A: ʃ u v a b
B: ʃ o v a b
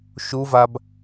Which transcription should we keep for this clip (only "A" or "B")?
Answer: A